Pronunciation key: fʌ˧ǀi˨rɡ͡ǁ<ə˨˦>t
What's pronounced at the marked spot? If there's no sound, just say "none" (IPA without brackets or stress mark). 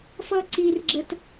ə˨